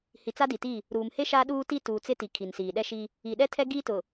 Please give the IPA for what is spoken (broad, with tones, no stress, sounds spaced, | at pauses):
h i˨ t͡s a˦ d i˨ t i˦˨ | ɾ uː˨ m h e˦ ʃ a˦ ɗ uː˦ t i˦ t uː˨ t͡s ɪ˦ t i˨ kʰ i˨ n s iː˨ ɗ ɛ˦ ʃ i˦ | i˨ ɗ ɛ˦ tʰ ɛ˦ ɡ iː˦ t ʊ˨